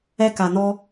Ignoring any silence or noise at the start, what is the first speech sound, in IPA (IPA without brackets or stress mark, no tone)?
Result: ɛ